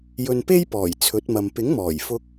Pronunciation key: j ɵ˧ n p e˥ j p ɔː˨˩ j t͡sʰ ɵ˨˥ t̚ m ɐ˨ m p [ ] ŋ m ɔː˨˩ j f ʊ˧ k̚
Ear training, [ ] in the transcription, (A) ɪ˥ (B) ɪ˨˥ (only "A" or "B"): B